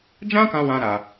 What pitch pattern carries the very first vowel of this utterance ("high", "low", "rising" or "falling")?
high